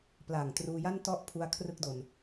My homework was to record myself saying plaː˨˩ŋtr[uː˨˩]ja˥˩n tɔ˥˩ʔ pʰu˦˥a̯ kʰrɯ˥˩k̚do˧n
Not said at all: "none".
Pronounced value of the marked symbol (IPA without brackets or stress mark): uː˧